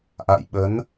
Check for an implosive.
present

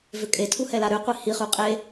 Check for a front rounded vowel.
present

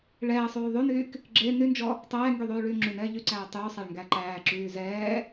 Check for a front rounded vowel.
present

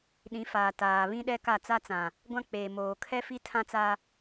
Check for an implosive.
present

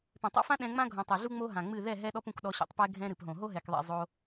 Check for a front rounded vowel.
absent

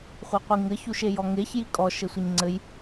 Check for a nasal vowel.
absent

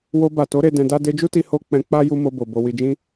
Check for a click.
absent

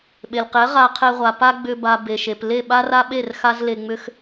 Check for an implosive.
present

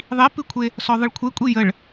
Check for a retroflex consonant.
present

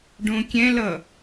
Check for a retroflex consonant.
present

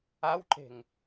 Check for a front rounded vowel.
absent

